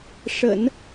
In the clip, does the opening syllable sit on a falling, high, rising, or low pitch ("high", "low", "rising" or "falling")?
low